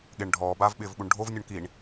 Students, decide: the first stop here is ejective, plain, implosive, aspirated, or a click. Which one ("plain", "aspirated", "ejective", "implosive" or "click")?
implosive